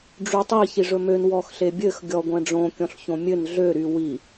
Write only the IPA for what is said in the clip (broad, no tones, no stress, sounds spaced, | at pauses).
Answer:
ɖ͡ʐ y tˤ i ç i ʐ ɵ m ø n w ɔ x ɬ e bʲ ɘ x ɡʲ ɔ ɡʷ ɛ̃ ɖ͡ʐ õ kʲ ɔ̃ ɬ ç õ mʲ ɘ n ɮ ø ɾ y w i